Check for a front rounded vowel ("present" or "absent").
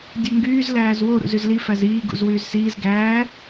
present